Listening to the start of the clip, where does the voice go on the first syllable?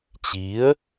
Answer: rising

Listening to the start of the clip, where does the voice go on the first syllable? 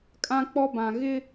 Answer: high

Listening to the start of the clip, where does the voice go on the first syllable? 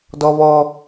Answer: high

